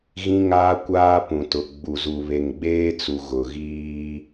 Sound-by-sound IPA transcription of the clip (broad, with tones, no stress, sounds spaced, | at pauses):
ɣ ĩ˦ ŋ aː˦ kʷ aː˦ p ũ˨ t ʊ˨ ɡ͡b u˨ z u˨ β e˨ ŋ ɡ͡b eː˦ t͡s u˨ ɣ ʊ˨ ɣ iː˦